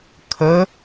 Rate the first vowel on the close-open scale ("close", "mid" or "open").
mid